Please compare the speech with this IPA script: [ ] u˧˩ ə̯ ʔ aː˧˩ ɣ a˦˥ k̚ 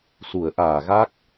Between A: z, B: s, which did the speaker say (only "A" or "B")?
B